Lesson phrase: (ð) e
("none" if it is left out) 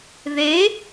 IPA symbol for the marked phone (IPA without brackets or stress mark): ð